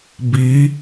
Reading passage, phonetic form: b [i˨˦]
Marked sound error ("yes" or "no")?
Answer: yes